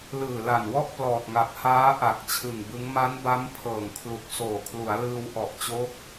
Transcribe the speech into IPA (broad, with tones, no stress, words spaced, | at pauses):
lɯː˨˩la˨˩nwɔ˥˩ʔ plɔː˨˩t̚ŋa˨˩p̚ haː˦˥ʔa˨˩k̚ t͡ɕʰɯ˨˩ŋbɯ˦˥ŋ ma˦˥nba˦˥m pʰɤː˨˩ŋkʰlu˨˩k̚ soː˨˩kʰlu˩˦a̯lɯː˧w ʔɔ˨˩ʔt͡ɕo˦˥k̚